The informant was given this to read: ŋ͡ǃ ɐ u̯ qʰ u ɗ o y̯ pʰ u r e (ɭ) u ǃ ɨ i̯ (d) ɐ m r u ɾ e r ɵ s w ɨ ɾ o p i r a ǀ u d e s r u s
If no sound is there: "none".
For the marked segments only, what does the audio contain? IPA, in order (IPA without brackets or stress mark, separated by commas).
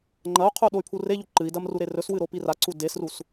ʎ, d